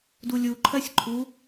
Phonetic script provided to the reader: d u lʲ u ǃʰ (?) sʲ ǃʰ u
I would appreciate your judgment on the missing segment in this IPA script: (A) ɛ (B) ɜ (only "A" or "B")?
B